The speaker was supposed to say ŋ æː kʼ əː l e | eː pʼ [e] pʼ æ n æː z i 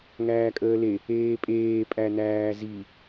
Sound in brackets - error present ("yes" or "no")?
yes